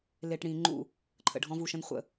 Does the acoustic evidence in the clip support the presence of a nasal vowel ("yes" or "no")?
yes